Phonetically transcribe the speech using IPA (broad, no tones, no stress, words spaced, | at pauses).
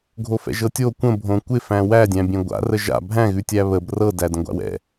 ɡʱofɛ̰ʒɤtʲo kʷə̃bʱõ kʷɪfæ̃ wædʲæ̃bʲẽ ɡʷa̰rə ʒa̰ bʱæ̃ɣʉtʲæ βəb rɤ dædə̃ɡʷa̰wɛ̰